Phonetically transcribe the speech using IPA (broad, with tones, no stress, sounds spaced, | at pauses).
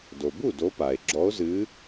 d o˩ b u˥˩ d o˨˦ p a˩ e̯ ɡ͡ǁ ɔ˨˦ o̯ z ɨ˨˦